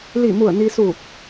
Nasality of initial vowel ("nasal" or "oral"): oral